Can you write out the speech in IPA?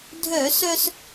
dʱ œ˧˩˧ s œ˧ s

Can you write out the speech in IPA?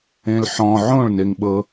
ẽ l ħ ɔ̃ ʕ õ ɭ n e ŋ ɓ ɤ

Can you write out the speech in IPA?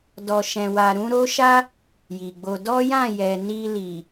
d ɔ˨ ʃ ɛ̃˨ w a˨ ɾ ũ˨˦ ɾ o˦ ʃ a˦ | j i˨ ɡ͡b o˧ d ɔ˦ j ã˦˨ j ɛ˨ n i˧ l i˨

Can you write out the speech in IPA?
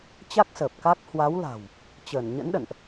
t͡ɕ a˦˥ k̚ s əː˨˩ p̚ k a˦˥ k̚ h w a˨˦ w l a̤˨˩ w | t͡ɕ əː˧˩ n ɲ ə̰˧˥ n ɗ ə̰˧˨ n ʔ

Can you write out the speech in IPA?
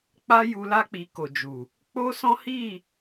k͡p a˦ j u˧ l a˦ k͡p i˧ k o˨ d͡ʒ u˨ | k͡p o˦ s ɔ̃˦ h i˦˨

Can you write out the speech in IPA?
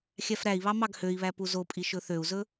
xʲ æ f ɾ æ i̯ β ɑ m ɑ ɡ h ø i̯ β æ p u z o pʼ i ʃ ɵ θ ø u̯ z ɵ

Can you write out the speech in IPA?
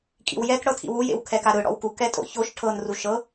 kʼ ḭ w j ɛ k ɽ ɤ tʰ ḭ w u j ḛ w kʰ ɛ k a ɾ ɯ ɽ ɔ̰ w k u k ɛ tʼ o̰ ç o ʃ ʈʰ ɤ n r u ʃ ɤ

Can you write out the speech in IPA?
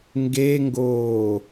ŋ ɡ e ŋ ɡ oː

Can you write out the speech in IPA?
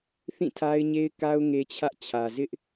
θ ĩ˦˨ tʰ a˦ ɪ̯ ɲ e˦ ɪ̯ k a˦ ʊ̯ ŋ e˦ t͡ɕʰ ä˦ ʔ t͡ɕʰ ä˨ z ɪ˦ ʔ

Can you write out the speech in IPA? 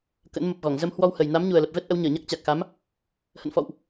k ə̰˧˥ n m ə˨˩ p̚ ɣ ɔ˧˩ ŋ z ə˧ m h w ɔ˧ w h ə˨˩ j n a˨˦ m ɲ u˨˩ ə̯ l ə˨˩ p̚ v ɛ˦˥ t̚ ʔ ə˨˦ w ɲ əː˧˩ ɲ a˦˥ k̚ t͡ɕ a˨˩ k̚ x a˨˦ m | h ə̰˧˨ n f ɔ̰˧˨ w ʔ

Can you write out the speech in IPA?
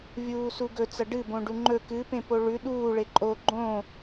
vʲ uː s u ɡ ɵ t͡s ɐ ɖ ɨ b õ ɖ u ŋ͡ǃ ɵ k ɨ p ẽ p o ɭ ʉ ɗ uː ɭ e ǃʼ o ɡ͡ǃ õ

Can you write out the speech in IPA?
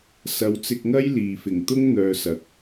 s ɐ˨˥ w t͡s ɪ˧ k̚ ŋ ɐ˥ j l iː˨ f ɪ˨˩ ŋ t̪ ʊ˥ ŋ n̪ œː˨ s ɐ˨ k̚

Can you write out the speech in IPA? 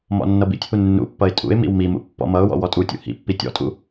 m ɔ̰ nː ʌ b ḭ tʲ h u nː ṵ pː ʌ ɪ̯ tʼ ṵ ɪ̯ m ḭ w m i m ṵ pː ɔ̰ m ʌ ʊ̯ w ɔ̰ w ɔ tʼ u tʲ ṵ h ḭ pː i tʲ ɔ̰ tʼ ṵ

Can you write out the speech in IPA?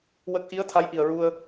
w ə˦˥ k̚ ʔ i˧˥ ə̯ t̪ʰ a˧˥ j ʔ i˨˩ ə̯ ɹ u˧ ə̯

